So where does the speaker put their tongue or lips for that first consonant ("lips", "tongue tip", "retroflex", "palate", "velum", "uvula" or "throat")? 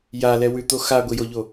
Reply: palate